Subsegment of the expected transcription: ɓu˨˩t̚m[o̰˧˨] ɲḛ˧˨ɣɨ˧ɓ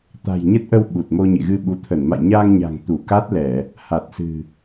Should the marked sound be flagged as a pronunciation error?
yes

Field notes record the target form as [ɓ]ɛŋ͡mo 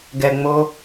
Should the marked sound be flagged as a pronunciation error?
yes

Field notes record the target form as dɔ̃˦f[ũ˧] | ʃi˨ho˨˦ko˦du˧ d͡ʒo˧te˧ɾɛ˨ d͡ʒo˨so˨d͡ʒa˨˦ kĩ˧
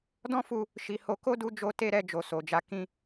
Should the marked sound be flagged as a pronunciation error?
yes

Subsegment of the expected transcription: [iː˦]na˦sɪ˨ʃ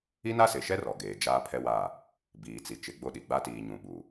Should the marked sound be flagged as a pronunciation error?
yes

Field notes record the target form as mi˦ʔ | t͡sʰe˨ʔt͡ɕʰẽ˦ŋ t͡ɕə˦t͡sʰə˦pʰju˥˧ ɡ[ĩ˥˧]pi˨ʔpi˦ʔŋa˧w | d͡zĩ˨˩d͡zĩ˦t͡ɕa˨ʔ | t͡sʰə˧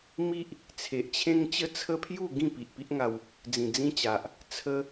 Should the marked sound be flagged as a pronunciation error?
no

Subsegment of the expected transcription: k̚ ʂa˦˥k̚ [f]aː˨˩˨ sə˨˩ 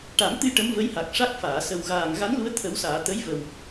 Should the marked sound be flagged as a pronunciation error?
no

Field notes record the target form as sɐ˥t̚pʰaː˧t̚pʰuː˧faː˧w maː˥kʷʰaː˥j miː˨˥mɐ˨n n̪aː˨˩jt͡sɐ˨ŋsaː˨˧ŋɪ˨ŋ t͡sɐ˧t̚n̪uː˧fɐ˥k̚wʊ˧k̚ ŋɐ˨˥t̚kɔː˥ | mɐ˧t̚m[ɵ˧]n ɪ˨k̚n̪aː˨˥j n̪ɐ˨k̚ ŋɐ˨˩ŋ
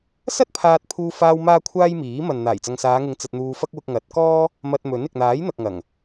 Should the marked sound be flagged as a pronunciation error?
yes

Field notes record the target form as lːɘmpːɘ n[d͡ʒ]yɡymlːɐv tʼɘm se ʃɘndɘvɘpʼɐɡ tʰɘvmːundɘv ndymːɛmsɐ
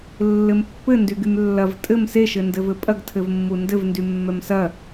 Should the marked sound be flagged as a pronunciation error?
yes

